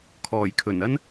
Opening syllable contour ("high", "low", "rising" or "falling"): low